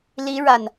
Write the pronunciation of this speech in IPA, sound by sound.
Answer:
li˧˥ ɻa˥˩n

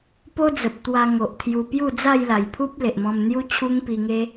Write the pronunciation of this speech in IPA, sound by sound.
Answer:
po˦d͡zə˨p̚t̪wa˧ŋo˨ʔ t̪ʰju˧ pju˥˧d͡za˥˧jla˨˩jpʰu˦p̚ le˨ʔmɔ̃˧mn̪ju˦ t͡ɕʰu˦ŋpi˧ŋe˦

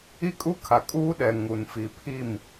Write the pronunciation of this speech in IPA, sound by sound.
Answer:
i˦kʼu˦kʰa˨ kʼuː˦ɗɛ˨ ŋu˨nfi˨pʰi˦˨m

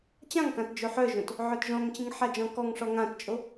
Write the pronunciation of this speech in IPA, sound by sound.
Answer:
t͡ɕãŋkãt d͡ʒoħœʒõt | ʕœtʒɔ̃ŋt͡ɕĩŋ ħad͡ʒɔ̃kɔŋʂɔ ŋãtt͡ʃʼo

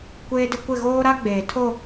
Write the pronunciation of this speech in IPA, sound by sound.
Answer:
kʷeː˦dɪ˦ kʷɪ˦˨ ɣoː˦ɾa˦ɡ͡beː˨ tʰo˦˨

